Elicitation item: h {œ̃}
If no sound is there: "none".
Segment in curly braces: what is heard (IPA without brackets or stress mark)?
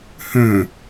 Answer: œ̃